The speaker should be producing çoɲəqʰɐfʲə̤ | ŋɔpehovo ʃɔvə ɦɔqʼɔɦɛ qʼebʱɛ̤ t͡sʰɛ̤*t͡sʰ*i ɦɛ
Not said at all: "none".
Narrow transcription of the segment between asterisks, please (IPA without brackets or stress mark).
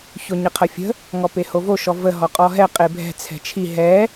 t͡ʃʰ